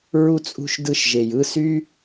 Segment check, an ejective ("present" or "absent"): present